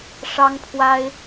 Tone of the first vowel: high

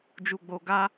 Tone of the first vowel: low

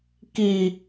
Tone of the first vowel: high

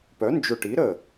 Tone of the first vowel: rising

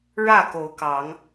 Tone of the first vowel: falling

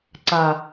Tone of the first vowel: low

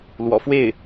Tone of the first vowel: low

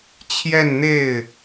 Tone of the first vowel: falling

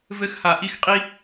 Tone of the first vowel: high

